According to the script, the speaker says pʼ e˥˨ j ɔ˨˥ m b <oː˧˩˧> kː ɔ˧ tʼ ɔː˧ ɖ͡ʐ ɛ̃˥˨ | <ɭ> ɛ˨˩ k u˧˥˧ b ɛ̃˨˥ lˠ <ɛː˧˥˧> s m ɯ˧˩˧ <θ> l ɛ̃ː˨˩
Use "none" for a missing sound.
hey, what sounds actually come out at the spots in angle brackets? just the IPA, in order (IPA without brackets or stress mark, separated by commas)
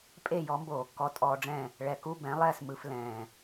oː˧˩˧, ɭ, ɛː˥˨, f